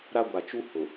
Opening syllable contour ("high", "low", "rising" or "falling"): high